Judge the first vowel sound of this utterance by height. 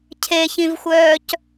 mid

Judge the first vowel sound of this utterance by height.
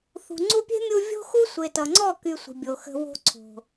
high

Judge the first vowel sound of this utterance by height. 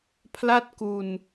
low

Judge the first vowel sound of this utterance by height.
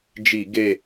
high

